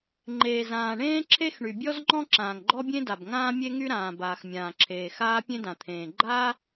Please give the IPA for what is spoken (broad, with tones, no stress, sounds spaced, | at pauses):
ŋ͡ǃ eː˩ z ãː˩ ɳ ẽː˥ ǁʰ e˥ x ɳ y˩ bʲ ɔ˥ z ŋ͡ǃ ɔ̃˥ ǁ ãː˩ ŋ ɡ͡ǃ ɔ˥ bʲ ẽ˥ d a˩ b ŋ ãː˥ mʲ e˥ ŋ y˥ ɾ ãː˩ b aː˩ x mʲ ãː˩ ǁʰ eː˩ x aː˥ pʲ ẽ˥ d ã˩ t̪ʰ ẽː˩ ɡ͡ǃ aː˥